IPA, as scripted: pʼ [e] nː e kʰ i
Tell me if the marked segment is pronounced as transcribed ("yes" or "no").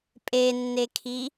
yes